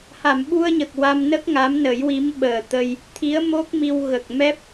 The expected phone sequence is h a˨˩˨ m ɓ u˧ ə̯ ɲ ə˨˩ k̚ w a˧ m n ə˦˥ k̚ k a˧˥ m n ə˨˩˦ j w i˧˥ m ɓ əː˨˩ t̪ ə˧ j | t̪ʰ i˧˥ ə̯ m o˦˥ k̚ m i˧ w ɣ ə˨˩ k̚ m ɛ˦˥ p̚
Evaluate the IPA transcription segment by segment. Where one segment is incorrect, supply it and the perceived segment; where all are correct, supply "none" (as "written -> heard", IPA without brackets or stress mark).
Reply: k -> ŋ